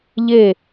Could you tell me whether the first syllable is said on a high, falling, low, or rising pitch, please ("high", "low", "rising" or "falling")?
falling